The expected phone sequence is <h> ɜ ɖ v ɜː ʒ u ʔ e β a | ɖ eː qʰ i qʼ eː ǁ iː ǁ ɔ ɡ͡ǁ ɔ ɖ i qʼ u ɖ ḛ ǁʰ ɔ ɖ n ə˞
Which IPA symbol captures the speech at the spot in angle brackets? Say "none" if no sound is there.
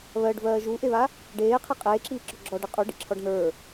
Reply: β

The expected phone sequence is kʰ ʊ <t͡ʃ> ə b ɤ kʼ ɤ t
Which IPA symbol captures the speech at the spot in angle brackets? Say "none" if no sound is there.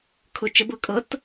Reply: t͡ʃ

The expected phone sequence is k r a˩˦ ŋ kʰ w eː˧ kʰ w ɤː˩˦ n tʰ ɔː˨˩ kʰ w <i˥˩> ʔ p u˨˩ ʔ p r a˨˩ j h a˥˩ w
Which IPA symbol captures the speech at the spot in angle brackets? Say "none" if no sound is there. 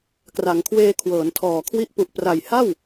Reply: i˦˥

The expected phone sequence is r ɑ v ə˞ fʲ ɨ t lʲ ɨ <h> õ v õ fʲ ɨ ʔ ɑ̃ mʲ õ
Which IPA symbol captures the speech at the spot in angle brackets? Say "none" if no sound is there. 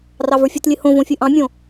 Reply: h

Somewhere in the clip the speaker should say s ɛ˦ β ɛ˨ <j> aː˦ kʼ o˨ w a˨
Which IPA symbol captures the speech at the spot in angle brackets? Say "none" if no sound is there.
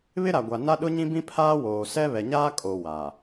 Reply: ɲ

